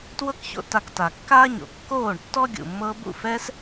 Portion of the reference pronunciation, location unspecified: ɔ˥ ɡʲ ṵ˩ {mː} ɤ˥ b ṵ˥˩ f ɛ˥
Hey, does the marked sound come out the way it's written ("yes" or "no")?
yes